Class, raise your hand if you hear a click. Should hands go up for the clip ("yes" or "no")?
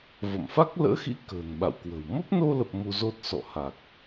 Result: no